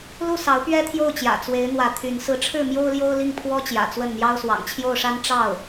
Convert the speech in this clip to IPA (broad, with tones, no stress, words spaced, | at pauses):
lu˥˩sɑ˧˥ʊ̯ pɥɛ˥t̪ʰjo˥˩ʊ̯t͡ɕjä̰˨˩ t͡swe˧˥ɪ̯n̪wä˧˥ t̪ʰy˧˥n sɹ̩˧˥ʈ͡ʂʰɻ̩˥˩ mjo˥ʊ̯ljo˥ʊ̯ li˥˩ŋpʰwɔ˥ t͡ɕjä̰˨˩t͡swə˥˩nn̪jɑ˥ʊ̯ swɑ̰˨˩ŋt͡ɕʰjo˥˩ʊ̯ʂa˥n ʈ͡ʂɑ˥˩ʊ̯